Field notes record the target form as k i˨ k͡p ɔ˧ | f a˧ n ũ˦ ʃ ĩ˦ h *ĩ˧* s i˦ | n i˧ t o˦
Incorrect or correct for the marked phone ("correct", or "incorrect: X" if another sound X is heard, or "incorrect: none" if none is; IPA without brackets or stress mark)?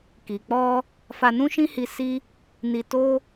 incorrect: i˧